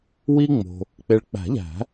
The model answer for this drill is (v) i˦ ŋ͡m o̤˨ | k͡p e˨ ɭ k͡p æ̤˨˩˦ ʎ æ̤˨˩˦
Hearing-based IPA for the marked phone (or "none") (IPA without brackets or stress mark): w